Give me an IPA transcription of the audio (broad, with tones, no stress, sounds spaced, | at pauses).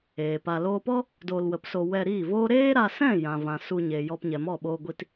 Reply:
eː˨ p a˧ l oː˧ p ɔ˦ | d oː˧ l w ə˨˦ p s o˧ w ɛ˧ ɾ iː˦˨ v oː˦ ɾ eː˦ ɾ a˧ s ɛ̃˦˨ j ã˨ v ã˨ s u˧ ɲ eː˨ j ɔ˧ p ɲ ɛ˨ m ɔ˦˨ ɓ oː˧ ɡʷ i˧ t